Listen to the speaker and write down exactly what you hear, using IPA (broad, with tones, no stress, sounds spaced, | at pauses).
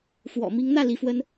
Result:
f w ɔ̰˨˩ m i˧˥ ŋ n̪ ä˥˩ l i˧˥ f w ə˥ n